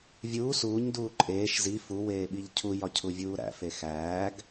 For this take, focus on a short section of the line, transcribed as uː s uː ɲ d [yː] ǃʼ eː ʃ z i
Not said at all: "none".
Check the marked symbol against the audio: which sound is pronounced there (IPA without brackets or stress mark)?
uː